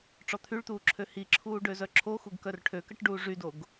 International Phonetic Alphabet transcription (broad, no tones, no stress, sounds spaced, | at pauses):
ʈ͡ʂ ɔ t̪ʰ y ɭ t̪ uː ǁʰ ø h i ǁʰ uː ɖ ø z œ ǁʰ o x u ɡ k œ r ʈʰ ø k ə ʈ ɖ uː ʐ y d o ɡ